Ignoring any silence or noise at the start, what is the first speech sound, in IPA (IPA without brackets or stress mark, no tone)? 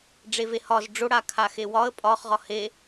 ɖ͡ʐ